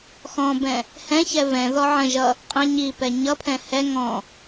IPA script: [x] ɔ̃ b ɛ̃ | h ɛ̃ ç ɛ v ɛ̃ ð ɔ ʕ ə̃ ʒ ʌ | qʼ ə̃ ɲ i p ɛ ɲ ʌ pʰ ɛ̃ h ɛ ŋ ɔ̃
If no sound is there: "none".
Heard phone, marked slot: x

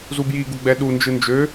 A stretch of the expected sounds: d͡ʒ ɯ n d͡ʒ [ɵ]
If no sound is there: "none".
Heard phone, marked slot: ø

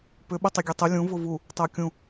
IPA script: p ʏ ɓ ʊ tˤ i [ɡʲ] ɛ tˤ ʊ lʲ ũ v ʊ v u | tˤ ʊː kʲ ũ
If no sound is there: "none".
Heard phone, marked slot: ɡʲ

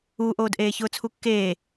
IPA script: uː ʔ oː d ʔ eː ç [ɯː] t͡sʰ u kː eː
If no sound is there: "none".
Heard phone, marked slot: ʊː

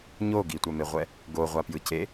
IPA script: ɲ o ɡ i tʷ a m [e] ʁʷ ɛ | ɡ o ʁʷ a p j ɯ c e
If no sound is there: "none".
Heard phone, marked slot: e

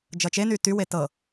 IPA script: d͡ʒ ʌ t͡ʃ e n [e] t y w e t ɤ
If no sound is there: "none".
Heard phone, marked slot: y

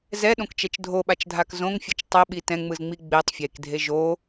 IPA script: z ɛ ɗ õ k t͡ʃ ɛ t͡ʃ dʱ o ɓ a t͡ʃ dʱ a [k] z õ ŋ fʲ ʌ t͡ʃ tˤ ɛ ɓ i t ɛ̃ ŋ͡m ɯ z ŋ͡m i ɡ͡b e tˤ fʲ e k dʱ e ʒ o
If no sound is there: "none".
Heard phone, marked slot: k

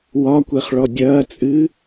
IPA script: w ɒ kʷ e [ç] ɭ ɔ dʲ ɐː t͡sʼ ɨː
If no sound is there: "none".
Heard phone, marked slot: χ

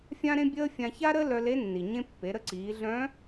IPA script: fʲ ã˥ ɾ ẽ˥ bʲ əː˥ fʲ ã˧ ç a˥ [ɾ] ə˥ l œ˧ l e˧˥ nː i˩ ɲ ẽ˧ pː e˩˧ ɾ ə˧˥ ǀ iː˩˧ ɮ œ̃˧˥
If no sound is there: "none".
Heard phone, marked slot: ɾ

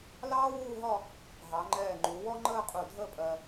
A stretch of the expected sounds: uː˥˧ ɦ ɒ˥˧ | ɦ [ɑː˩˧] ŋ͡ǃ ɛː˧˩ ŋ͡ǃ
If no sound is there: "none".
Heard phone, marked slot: ɑ˩˧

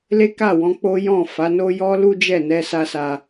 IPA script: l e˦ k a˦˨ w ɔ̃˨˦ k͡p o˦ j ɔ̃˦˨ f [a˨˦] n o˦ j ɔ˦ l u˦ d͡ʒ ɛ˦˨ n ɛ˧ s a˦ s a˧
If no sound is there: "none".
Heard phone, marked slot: a˨˦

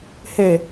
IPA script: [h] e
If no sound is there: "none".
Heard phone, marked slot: h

